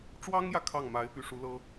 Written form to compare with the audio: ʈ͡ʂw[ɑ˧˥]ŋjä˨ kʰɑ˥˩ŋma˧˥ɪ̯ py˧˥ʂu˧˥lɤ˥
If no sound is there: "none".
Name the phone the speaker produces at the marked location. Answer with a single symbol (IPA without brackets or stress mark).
ɑ˥